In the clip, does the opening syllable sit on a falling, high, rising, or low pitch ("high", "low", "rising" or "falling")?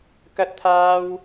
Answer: high